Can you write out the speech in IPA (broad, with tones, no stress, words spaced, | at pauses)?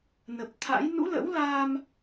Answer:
nə˨˩p̚t̪ʰa̰˧˥j nṵ˧˥lə̰˧˥wla˧m